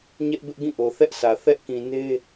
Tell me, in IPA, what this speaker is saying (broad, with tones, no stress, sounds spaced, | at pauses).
ɲ ɛ˦ ʔ b ɪ˦ ʔ ɡ ĩ˦˨ ʔ o˨ θ ɛ˦ ʔ s ä˨ θ ɛ˦ ʔ k ĩ˨ n e˦